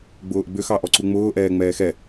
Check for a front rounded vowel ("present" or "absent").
present